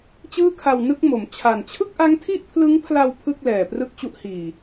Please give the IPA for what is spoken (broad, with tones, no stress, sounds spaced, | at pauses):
t͡ɕ ɯː˥˩ kʰ a˧ w n ɯ˥˩ k̚ m o˩˦ m t͡ɕʰ a˨˩ n t͡ɕʰ ɯ˥˩ k̚ ʔ a˦˥ ŋ tʰ i˥˩ ʔ pʰ l ɯ˦˥ ŋ pʰ l a˧ w pʰ ɯ˥˩ k̚ l ɛː˨˩ p r ɯ˥˩ k̚ t͡ɕ u˦˥ ʔ h iː˨˩